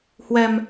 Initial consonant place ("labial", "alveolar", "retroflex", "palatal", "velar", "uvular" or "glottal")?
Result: glottal